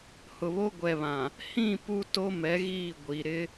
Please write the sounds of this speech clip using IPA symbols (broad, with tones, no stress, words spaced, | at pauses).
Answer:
hʊ˨βo˦ ɡʷɛ˨βã˨ | hĩ˦˨ pu˦to˦mɛ˨˦ ɣiː˦˨ɡʷi˨ ɾɪ˦